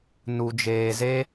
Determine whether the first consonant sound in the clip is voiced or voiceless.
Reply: voiced